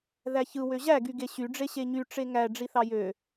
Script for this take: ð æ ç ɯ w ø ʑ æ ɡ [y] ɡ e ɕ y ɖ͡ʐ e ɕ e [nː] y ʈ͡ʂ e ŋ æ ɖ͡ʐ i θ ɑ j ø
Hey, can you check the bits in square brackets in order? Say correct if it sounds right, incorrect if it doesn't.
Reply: correct, incorrect: ɲ

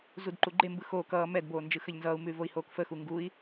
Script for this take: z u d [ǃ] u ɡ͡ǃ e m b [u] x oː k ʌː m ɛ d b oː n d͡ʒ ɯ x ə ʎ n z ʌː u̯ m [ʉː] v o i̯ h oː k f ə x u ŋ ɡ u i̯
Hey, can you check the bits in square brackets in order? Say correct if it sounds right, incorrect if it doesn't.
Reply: correct, incorrect: ɯ, correct

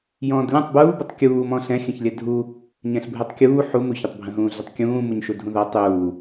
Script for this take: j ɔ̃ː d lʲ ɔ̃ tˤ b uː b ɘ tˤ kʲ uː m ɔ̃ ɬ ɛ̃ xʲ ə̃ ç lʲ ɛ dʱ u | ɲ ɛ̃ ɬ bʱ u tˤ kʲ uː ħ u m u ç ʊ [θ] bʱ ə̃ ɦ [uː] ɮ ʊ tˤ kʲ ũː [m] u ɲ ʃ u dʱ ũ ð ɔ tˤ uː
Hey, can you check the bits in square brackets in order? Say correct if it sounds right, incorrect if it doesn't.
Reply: incorrect: tˤ, incorrect: ũː, correct

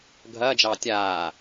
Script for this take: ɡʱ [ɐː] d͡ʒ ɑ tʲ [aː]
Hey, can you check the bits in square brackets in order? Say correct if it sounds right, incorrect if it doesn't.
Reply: correct, correct

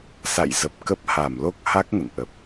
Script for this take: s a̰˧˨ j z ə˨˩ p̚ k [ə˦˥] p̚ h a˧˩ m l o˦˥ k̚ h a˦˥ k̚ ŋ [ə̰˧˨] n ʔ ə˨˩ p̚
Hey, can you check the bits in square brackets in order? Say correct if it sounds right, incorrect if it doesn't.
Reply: correct, correct

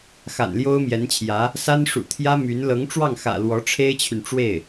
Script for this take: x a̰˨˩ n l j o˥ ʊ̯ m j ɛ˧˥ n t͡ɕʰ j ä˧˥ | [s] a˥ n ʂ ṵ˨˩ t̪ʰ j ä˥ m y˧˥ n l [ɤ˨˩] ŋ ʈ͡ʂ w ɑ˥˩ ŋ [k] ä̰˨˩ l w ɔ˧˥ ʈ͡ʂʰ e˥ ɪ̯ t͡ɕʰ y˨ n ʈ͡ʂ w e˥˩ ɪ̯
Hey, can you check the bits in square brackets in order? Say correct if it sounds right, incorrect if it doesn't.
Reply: correct, incorrect: ɤ˧˥, incorrect: x

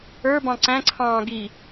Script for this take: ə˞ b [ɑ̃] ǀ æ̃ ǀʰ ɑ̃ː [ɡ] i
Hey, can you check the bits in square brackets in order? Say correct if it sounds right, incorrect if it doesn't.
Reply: correct, correct

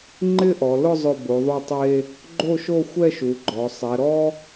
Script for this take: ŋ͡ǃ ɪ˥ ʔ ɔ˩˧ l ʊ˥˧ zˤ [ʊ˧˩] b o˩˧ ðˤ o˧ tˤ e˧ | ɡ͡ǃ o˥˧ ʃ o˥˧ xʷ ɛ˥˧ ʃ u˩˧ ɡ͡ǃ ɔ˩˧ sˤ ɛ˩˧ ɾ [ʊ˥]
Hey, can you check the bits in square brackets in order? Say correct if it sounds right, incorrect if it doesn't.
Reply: correct, incorrect: ɔ˥

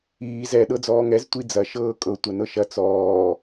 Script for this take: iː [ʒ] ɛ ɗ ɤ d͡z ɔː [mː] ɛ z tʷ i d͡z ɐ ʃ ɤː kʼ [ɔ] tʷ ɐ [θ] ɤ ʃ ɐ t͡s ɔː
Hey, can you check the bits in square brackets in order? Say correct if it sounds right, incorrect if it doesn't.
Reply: incorrect: z, incorrect: ŋ, incorrect: ɤ, incorrect: n

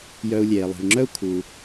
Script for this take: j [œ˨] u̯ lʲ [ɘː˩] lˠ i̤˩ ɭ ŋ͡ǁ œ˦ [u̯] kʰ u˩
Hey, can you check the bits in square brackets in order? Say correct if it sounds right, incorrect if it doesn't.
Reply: correct, incorrect: eː˩, correct

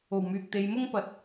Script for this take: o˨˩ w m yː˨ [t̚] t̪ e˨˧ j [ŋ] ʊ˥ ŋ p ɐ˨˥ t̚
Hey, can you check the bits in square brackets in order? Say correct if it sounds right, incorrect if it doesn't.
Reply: incorrect: k̚, incorrect: m

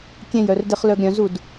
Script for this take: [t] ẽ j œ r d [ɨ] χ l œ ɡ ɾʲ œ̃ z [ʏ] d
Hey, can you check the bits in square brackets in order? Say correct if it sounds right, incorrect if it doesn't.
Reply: incorrect: kʲ, incorrect: e, incorrect: u

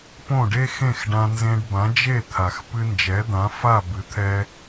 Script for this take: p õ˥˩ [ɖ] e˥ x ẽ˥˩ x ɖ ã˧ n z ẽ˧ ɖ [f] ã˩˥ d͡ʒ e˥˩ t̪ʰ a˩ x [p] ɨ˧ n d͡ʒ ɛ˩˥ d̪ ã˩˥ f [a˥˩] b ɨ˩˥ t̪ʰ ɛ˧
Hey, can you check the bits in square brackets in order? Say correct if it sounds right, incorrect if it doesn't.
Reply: correct, incorrect: b, correct, correct

